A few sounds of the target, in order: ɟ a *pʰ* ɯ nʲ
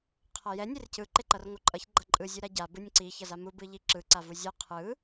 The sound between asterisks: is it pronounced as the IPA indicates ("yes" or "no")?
no